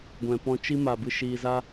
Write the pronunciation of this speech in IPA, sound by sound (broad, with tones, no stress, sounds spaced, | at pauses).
ɡʷ ɛ̃˨ p ɔ̃˧ t͡ʃ i˧ m a˨ b ɨ˧ ʃ iː˨ z a˧